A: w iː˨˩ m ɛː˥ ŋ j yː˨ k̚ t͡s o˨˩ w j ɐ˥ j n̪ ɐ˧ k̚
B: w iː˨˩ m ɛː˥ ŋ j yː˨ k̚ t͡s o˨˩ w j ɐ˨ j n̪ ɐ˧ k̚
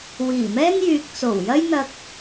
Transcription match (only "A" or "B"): A